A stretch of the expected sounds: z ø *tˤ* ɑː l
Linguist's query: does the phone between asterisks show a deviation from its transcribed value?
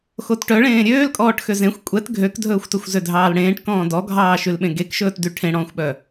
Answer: yes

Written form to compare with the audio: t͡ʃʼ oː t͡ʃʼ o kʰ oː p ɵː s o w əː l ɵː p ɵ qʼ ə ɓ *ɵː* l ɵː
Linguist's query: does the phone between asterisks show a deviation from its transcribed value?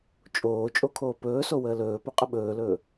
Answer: no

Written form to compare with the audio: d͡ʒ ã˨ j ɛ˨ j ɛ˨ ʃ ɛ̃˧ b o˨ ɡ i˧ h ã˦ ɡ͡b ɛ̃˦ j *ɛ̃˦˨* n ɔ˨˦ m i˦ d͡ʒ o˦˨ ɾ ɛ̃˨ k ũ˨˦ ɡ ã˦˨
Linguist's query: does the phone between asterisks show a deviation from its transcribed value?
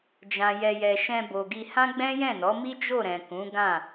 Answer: no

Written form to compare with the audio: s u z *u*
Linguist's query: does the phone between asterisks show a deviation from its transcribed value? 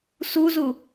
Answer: no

